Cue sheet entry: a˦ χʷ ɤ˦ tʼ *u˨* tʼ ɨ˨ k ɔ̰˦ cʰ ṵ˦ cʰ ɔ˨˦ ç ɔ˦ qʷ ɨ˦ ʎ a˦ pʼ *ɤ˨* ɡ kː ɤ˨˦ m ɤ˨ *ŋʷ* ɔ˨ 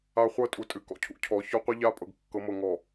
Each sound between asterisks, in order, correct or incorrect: correct, correct, incorrect

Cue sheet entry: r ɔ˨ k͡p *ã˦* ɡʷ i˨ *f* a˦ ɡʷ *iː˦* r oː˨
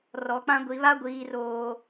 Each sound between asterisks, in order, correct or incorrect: correct, incorrect, incorrect

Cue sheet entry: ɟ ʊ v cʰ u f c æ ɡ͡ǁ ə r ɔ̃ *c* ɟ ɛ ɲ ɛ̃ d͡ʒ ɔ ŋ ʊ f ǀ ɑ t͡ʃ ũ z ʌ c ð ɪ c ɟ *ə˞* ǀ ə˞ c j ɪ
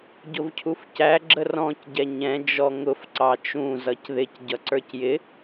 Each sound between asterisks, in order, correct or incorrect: correct, incorrect

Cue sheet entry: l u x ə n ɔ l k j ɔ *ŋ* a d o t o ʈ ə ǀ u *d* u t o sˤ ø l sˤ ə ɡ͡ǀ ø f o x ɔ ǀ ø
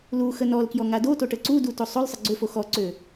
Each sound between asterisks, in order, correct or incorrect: correct, correct

